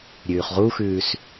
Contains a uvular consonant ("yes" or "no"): yes